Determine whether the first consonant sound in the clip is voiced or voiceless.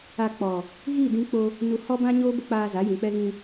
voiceless